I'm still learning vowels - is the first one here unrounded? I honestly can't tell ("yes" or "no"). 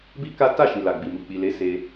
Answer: yes